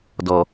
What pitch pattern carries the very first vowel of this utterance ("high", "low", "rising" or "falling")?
low